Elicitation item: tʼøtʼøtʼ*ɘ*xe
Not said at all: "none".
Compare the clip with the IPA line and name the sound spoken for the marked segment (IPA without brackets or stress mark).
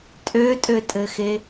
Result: ɘ